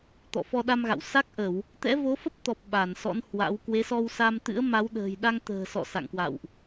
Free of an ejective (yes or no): yes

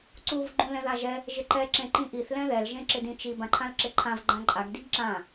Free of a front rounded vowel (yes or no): yes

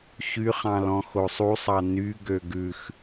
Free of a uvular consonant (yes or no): no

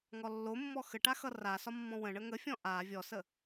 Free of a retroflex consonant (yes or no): no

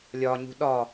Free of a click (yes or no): yes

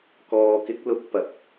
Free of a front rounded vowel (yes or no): yes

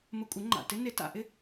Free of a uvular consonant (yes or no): yes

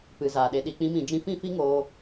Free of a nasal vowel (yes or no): no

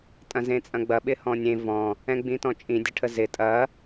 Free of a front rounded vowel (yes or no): yes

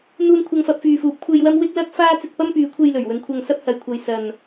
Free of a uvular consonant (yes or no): yes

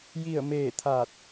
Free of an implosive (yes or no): yes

